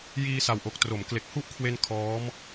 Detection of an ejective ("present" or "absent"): absent